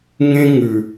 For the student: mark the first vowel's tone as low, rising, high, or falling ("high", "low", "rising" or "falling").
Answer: high